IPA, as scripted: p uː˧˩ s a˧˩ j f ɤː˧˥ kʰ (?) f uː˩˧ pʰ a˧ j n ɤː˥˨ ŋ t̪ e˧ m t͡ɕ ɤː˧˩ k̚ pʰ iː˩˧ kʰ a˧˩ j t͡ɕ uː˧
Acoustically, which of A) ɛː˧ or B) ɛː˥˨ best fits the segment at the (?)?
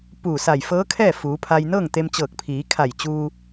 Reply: B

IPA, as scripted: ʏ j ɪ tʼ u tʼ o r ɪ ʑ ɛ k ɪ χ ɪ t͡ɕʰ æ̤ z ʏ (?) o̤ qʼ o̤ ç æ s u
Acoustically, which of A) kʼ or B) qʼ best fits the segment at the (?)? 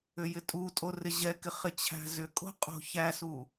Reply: A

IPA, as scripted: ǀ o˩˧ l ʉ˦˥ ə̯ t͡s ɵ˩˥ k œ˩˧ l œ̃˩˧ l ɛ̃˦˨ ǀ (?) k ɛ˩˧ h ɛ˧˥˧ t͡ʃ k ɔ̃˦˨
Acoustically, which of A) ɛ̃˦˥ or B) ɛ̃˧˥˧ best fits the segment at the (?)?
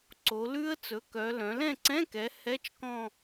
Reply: B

